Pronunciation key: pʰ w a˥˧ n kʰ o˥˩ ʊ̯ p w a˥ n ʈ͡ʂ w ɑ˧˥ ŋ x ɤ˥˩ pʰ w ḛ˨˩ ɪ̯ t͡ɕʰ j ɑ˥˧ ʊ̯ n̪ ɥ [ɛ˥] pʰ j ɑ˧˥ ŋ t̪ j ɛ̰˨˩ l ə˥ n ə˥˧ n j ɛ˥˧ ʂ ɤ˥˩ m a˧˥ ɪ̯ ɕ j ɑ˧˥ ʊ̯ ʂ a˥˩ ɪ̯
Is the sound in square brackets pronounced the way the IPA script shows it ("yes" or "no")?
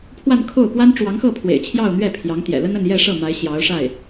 no